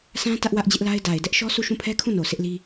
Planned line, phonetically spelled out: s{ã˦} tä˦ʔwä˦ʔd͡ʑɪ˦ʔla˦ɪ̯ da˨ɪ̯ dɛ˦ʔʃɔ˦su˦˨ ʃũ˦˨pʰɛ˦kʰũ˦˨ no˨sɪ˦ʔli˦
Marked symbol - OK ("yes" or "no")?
yes